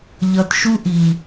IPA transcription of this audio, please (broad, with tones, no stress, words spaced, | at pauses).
ʎʌ˨tʃu˦ʔi˨